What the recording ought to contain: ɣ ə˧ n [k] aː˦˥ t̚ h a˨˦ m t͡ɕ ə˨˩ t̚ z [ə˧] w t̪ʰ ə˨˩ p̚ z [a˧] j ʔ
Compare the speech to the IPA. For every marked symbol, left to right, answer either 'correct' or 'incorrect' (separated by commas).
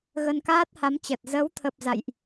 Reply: correct, incorrect, incorrect